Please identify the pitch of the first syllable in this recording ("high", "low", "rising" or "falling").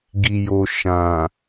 low